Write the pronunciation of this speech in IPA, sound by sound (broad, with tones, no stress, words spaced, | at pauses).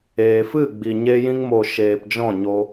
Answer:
eː˨fɨ˦˨ɡ͡bi˨ɲe˧ jĩ˧ŋmo˨ ʃeː˨pd͡ʒɔ̃˦˨ɲo˧